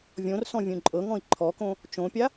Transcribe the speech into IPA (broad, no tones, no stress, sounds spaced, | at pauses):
vʲ õ r s ɔ̃ vʲ ũ ǃʼ ɤ ŋ ɔ̃ i̯ ǃʰ ɔ k õ | t͡ʃ õ pʲ a